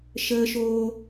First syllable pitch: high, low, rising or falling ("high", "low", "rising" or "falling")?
high